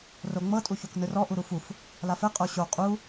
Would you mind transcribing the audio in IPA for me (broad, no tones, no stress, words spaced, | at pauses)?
roŋ͡mɤ tʼuçoknɯrɔ ʔuɾufuf | lafɛ qʼoɕo qʼu